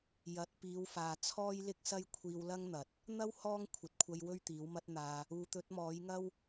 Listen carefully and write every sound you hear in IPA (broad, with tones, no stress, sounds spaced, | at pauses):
j ɐ˨˥ t̚ p iː˨˧ w f aː˨ t͡sʰ ɔː˥ j l ɪ˥ k̚ s ɐ˥ j kʷʰ iː˧ w l ɐ˥ ŋ n̪ ɐ˨ t̚ | n̪ ɐ˥ w h ɔː˥ ŋ kʷʰ ɐ˨ t̚ kʷʰ ɐ˧ j w ɵ˥ ɥ t̪ iː˨˥ w m ɐ˥ t̚ n̪ aː˧ | uː˨ t̪ ɵ˨˥ t̚ m ɔː˨˥ j ŋ ɐ˥ w